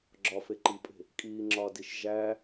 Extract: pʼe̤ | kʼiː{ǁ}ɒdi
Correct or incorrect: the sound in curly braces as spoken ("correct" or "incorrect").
incorrect